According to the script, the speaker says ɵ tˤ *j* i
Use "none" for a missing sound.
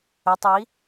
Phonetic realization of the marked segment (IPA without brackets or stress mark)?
j